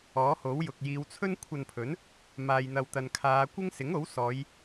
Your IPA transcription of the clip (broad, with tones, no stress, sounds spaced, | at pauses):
ɔː˨˥ h o˨˥ w j ʊ˨ k̚ j iː˨˧ w t͡sʰ ɵ˥ n kʷʰ ɐ˧ n pʰ ɵ˨˥ n | m aː˨ j n̪ ɐ˨ w t̪ ɐ˨ n kʰ aː˨˧ kʷ ɪ˥ ŋ s ɪ˨˥ ŋ o˨˥ w s ɔː˨˧ j